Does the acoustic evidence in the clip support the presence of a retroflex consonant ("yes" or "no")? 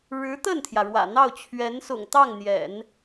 yes